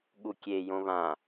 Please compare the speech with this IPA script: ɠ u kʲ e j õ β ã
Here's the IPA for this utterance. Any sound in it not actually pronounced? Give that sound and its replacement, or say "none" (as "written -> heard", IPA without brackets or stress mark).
none